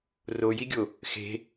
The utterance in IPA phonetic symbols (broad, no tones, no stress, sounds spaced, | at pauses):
r o j i ɡʲ o | x e̤